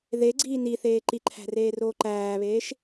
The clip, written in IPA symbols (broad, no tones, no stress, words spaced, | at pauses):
ðeɡ͡ǀiː niθeː ǃiǃʰæ̤reːroː ǃæːβeːʃ